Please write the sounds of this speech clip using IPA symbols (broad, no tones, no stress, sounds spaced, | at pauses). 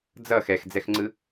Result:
d͡z ʌ x ɛ x d͡z ɛ x ŋ͡ǀ ɯ